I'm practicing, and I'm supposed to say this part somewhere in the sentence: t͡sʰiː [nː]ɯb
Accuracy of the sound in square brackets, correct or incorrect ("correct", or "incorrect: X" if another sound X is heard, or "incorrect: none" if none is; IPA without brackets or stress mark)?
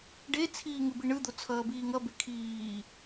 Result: incorrect: ŋ